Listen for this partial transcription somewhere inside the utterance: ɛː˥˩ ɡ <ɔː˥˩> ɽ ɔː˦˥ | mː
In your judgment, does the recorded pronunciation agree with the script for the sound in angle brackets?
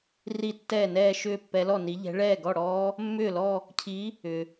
no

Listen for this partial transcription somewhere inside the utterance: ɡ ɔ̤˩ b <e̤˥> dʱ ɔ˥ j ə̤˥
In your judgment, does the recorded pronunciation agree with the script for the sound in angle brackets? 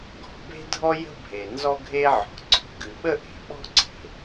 yes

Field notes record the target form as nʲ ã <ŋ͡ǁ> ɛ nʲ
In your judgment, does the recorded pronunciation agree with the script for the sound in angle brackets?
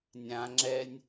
yes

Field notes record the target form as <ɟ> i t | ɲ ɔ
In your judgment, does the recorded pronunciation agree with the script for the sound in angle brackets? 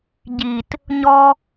yes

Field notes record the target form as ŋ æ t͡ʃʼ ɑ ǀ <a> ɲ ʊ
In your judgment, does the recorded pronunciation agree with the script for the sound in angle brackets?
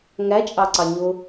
no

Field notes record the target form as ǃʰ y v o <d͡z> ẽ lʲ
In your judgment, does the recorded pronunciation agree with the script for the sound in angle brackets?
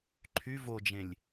no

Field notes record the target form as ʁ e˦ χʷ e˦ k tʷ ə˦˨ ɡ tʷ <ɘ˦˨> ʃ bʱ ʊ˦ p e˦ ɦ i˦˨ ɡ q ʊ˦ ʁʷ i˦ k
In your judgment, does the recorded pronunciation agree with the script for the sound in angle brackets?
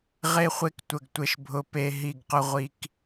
yes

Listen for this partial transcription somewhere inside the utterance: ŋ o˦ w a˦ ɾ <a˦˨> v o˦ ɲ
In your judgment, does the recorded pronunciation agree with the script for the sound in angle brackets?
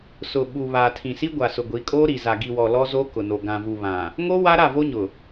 yes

